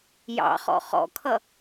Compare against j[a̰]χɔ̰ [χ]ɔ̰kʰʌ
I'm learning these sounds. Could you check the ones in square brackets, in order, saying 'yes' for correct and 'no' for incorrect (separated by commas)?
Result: no, yes